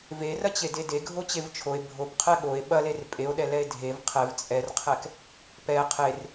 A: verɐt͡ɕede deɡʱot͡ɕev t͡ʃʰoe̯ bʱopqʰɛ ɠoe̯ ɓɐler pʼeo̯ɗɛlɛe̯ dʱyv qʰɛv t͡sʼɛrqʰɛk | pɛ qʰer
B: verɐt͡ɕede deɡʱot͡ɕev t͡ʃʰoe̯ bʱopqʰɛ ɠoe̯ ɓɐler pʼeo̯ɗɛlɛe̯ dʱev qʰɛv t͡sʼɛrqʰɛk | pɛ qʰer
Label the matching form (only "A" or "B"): B